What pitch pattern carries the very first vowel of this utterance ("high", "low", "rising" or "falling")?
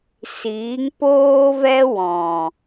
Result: rising